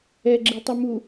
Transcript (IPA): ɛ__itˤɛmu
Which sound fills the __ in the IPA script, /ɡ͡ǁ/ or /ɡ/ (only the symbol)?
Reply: ɡ͡ǁ